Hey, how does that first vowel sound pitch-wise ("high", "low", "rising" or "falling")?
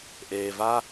low